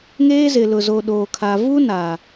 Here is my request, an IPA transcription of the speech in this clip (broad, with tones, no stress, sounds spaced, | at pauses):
ŋ eː˦ z ɪ˨ l ʊ˨ z o˨ ɗ oː˨ kʰ a˨ v u˦ n aː˨